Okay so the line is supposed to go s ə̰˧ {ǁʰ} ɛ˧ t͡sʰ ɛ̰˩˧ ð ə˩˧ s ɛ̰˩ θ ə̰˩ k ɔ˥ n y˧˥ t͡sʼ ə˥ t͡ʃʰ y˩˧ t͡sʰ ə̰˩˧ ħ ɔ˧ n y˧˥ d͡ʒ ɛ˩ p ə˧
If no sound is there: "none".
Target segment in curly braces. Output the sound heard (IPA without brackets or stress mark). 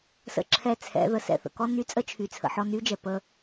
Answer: ǁʰ